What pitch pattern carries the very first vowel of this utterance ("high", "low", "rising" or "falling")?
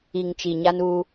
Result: low